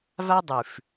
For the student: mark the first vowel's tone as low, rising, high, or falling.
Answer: high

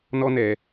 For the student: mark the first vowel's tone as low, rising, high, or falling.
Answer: high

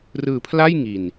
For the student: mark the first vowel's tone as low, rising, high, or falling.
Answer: low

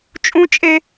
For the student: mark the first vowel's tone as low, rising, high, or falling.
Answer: high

